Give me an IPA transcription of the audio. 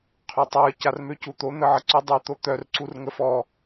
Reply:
qʰ ø tˤ œ ə̯ c a r m ø c u t̪ o n̪ ə ʕ ə ǀ u dˤ u t̪ o t̪ œ r ǀ u r ŋ ə f ɔ

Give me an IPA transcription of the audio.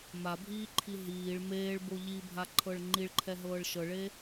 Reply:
m a bʱ iː ǃʰ i ɦ iː ɭ m eː ɭ b o ʎ i bʱ a ǃʰ ɤ ɭ ŋ͡ǃ i ɭ ǃʰ ɛ ɦ ɤː ɭ ʃ ɤ ɭ e

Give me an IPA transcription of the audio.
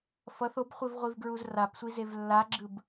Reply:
f ʌ θ o b χʷ i v ʁʷ i v ɡ ɹ u z r a p sʷ i z e v lː a ɡ͡ǁ ɯ b

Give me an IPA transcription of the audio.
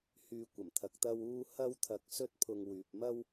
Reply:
h yː˨ kʷ ɐ˨˩ m t̪ʰ ɐ˨ k̚ t̪ ɐ˧ w uː˥ h ɐ˥ w t̪ʰ ɐ˧ k̚ s ɵ˥ t̚ pʰ ʊ˧ ŋ w yː˨ p̚ m ɐ˥ w

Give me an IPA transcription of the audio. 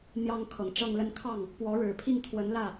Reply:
n̪ j ɑ˥ ŋ kʰ ɤ˨˩ ŋ ʈ͡ʂ ɤ˥˧ ŋ l ə˥˧ n kʰ ɑ˥˩ ŋ | p w ɔ˧˥ ɻ ɻ̩˨˩ pʰ i˥˩ ŋ t̪ʰ w ə˧˥ n l ä˥˩

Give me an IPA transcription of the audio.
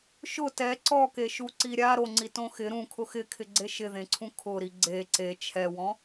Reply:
ʃ ʊ t ɛ ǀ ɔ k e ʃ u ǀ i ɾʲ a ɾ o ŋ͡ǀ i t õ x ɪ ɾ ũ kʰ ʊ x ɪ kʰ ɪ ɡ͡ǀ e ʃ ɪ ð ẽ ǀʰ ũ kʰ ʊ ɾ i ɡ͡ǀ e ǀ e t͡ʃʰ ɛ w ɔ̃

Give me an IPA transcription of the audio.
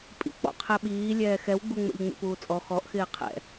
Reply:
pʼ ḭ k͡p ɔ̰ qʰ ɛ ɓ iː lʲ ɛː x ɛ w ɡ͡b u ŋ͡m ɛ̰ ʎ ŋ͡m ḭ p uː t͡sʼ ɔ x ɔ ʔ x ɪː qʰ ɛ̰

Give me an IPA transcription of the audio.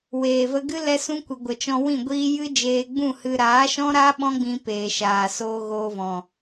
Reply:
w eː˨ v ə˧ ɡ ɨ˦ l ɛ˦ s ũ˦ kʷ ɨ˨ ɡʷ ə˨ t͡ʃ ɔ̃˧ w ĩ˦˨ ɡʷ iː˦ j ɨ˦ d͡ʒ eː˧ ɡ͡b ũ˦˨ h ɨ˦ ɾ aː˨˦ ʃ ɔ̃˦ ɾ aː˦ ɓ ɔ̃˦ ɡ͡b ĩ˧ p eː˨ ʃ aː˨ s oː˧ ɣ oː˧ v ɔ̃˨

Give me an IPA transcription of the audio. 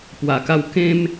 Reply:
p w a˧ k a˦ w k ẽ˦ m

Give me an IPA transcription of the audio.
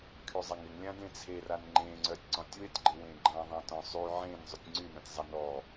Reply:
kʰ y zˤ a ŋ ɪ ŋ lʲ ã d ẽ t͡sʰ e r a n ŋ͡ǃ ẽ ŋ͡ǀ œ tʲ ǀ ɔ̃ tʲ w ɪ tʲ ɡ͡ǃ ɪ w ẽ ɡ͡ǃ ã ðˤ ã t ɔ̃ sˤ y ʕ ẽ n zˤ y tʲ ŋ͡ǀ y n œ̃ tʲ zˤ a n ɔ

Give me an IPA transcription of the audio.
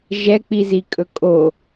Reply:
ʒ ɛ k͡p i z i kʼ ɵ kʼ o

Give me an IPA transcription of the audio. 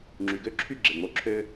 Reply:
ŋ͡ǁ y˨ ɡ ø˦ ǁʰ y˦˨ ɡ͡ǁ e˨ ŋ͡m o˧ ǁʰ ø˧

